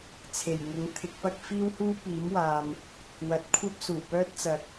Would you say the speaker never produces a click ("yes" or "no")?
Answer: yes